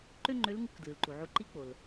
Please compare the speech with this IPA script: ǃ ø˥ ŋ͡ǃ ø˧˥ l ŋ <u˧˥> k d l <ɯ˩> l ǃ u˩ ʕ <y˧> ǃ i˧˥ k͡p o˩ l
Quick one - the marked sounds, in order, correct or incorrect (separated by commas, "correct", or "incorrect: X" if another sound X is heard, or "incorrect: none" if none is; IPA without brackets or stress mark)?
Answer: correct, correct, incorrect: u˧